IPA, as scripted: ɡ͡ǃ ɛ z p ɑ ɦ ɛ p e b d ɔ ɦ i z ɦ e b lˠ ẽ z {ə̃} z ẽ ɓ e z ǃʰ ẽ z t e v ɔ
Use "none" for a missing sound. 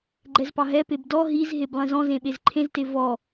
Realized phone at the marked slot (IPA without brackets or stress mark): ɔ̃